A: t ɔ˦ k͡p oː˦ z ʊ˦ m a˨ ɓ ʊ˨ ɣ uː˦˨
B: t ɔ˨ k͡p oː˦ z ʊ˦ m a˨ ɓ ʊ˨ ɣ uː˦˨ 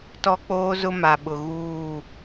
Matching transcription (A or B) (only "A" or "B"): A